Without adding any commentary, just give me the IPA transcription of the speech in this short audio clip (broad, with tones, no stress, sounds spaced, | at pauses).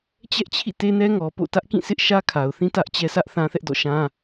t͡ɕ ɛ˦ ʔ t͡ɕʰ ḭ˦˨ t e˦ n ɛ˦ ŋ ɔ˨ p o̰˦˨ t ä˦ ʔ k ĩ˦˨ sʰ ɪ˦ ʔ ʃ ä˦ kʰ a˨ ʊ̯ θ ĩ˦ t ä˦ ʔ t͡ɕ ɛ˦ s ä˦ ʔ θ ã˦ θ ɛ˦ ʔ d ɔ̰˦˨ ʃ ã˦